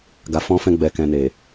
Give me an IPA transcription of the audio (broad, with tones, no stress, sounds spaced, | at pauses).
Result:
ɡ a˨ f ɔ̃˧ f ɛ̃˧ ɡ͡b ɛ˨ k ɛ̃˨ n e˨